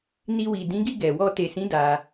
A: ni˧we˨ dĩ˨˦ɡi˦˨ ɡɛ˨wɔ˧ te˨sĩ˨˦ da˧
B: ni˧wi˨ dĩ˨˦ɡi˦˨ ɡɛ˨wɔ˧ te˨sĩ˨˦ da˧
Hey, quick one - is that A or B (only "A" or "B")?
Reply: B